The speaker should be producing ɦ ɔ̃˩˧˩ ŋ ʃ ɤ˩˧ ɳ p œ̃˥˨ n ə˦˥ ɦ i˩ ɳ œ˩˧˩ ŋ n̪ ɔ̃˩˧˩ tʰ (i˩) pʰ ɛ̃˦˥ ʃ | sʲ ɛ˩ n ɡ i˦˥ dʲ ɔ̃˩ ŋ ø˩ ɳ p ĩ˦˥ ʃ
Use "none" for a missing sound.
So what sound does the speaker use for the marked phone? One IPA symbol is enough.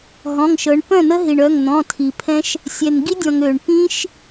i˩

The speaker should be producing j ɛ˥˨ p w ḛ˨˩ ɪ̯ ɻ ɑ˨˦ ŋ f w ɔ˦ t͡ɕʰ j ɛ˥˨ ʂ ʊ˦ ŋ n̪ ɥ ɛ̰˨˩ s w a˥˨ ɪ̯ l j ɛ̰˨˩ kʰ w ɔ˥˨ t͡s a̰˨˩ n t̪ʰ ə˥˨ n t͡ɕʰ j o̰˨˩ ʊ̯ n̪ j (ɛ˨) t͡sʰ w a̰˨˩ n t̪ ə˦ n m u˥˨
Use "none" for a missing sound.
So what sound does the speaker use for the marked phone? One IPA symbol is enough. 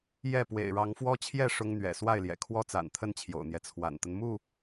ɛ˦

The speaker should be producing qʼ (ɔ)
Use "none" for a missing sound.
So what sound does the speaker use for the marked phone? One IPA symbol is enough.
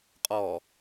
ɔ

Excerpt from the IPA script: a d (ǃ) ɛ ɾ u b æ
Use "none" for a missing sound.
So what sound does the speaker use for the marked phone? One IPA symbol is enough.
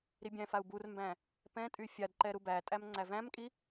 ǃ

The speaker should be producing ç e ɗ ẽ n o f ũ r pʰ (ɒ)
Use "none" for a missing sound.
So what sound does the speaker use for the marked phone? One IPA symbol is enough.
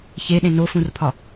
ɒ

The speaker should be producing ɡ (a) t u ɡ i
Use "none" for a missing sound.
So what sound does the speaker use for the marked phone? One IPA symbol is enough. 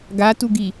a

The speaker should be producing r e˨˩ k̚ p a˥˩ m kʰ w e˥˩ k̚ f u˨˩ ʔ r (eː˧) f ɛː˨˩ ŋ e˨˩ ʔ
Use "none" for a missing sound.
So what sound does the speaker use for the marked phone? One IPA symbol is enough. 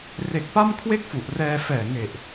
ɛː˧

